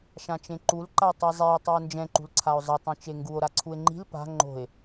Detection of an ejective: absent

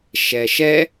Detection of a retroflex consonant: absent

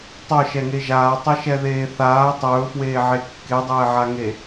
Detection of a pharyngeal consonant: present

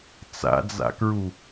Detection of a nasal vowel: absent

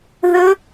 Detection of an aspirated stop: absent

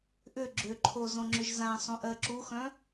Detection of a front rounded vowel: present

